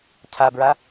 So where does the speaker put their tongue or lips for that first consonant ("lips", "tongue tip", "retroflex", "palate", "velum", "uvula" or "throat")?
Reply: palate